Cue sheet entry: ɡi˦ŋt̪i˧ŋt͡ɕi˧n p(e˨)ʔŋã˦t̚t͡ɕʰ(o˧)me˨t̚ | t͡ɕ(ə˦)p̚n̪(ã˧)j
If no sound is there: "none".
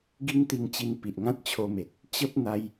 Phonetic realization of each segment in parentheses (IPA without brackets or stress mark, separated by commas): i˨, o˧, ə˦, a˧